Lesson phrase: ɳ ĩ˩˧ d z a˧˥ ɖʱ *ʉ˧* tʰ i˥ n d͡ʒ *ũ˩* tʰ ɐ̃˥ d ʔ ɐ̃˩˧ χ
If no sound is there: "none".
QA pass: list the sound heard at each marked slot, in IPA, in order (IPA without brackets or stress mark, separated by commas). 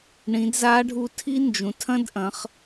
u˧, ũ˩